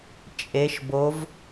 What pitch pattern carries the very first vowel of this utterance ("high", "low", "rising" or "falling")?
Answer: rising